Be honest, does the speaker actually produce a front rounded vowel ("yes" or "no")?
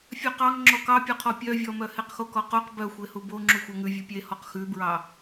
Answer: yes